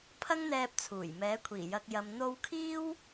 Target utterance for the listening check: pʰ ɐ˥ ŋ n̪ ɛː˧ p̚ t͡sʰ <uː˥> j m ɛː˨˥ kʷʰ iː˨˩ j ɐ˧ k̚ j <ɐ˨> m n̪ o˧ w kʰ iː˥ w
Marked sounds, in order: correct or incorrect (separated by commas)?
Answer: incorrect, correct